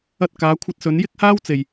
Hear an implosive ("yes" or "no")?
no